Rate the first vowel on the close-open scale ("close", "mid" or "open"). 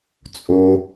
mid